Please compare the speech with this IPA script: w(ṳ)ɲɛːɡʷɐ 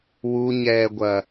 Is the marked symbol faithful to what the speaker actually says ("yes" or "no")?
no